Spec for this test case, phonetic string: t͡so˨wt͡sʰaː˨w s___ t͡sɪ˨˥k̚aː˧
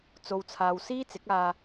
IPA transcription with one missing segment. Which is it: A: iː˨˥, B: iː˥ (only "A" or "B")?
B